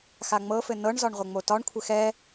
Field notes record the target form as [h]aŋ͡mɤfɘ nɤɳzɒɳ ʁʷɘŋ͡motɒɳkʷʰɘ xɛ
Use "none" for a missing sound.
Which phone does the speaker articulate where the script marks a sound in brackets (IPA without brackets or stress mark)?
x